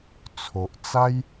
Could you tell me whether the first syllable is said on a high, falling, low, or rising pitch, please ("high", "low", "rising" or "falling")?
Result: low